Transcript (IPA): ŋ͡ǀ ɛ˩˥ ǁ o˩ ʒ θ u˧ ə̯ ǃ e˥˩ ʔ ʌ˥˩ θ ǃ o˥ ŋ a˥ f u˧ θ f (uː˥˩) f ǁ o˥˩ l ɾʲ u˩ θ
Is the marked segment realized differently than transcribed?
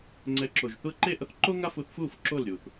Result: no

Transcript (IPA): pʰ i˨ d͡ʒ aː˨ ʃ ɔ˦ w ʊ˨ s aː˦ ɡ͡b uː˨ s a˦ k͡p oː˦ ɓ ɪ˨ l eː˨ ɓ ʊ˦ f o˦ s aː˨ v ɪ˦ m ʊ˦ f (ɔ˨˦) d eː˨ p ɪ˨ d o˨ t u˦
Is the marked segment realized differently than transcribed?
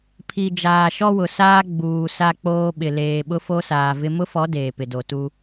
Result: no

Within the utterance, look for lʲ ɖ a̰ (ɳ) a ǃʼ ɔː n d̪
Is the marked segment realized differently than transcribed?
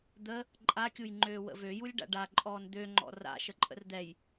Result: yes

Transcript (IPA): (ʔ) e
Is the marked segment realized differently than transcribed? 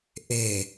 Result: no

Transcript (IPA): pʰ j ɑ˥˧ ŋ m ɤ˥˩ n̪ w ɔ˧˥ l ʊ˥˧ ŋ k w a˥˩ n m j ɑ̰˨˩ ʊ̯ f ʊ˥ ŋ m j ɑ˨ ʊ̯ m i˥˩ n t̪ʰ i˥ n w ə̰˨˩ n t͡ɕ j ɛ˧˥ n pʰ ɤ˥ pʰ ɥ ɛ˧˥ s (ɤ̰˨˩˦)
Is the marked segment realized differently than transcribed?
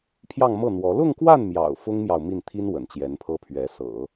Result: no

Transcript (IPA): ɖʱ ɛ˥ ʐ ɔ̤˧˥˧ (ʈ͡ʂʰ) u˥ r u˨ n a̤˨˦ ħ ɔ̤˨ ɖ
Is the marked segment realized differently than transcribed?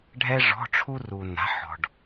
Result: no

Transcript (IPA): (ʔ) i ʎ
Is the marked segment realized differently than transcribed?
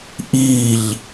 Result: no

